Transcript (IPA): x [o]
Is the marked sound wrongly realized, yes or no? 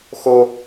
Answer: no